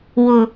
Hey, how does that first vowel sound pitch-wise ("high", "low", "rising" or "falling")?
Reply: low